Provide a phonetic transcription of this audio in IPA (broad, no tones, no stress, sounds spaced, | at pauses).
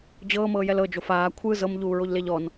d͡ʑ ɤː m ɤː j ɛ l ɤ d͡ʒ o f aː kʷʰ ɯ z ɤ m ʎ uː ɹ o ʎ l e ʎ ɔ n